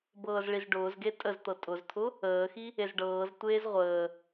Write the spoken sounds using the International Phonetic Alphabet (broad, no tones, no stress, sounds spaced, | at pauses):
b ɤː z ɭ i z ɖ ʊː z ɡ e tʼ ə z t̪ ɤ tʼ ʊ z t̪ʰ ʊ | əː x i | e z ɖ ɤː z tʷ eː z ʁʷ əː